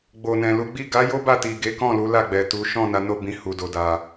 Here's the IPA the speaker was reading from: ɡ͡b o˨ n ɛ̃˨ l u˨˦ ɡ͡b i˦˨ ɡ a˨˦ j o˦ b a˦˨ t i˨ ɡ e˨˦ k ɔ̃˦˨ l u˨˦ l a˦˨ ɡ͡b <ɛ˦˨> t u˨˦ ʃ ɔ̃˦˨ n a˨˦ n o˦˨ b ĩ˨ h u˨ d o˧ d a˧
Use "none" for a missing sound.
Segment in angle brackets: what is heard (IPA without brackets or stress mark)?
ɛ˨